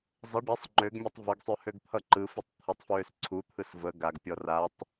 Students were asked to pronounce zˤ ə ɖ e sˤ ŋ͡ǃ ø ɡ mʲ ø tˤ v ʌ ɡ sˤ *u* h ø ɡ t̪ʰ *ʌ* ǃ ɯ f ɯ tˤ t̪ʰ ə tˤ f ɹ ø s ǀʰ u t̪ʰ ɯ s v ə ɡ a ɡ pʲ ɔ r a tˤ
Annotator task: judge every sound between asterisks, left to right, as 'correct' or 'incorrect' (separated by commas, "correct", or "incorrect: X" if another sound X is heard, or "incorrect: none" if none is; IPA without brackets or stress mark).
incorrect: ø, correct